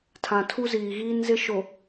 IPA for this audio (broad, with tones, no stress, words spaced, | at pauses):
tʰã˨tʰu˦ziː˨ɣiː˦n zɪ˦ʃo˨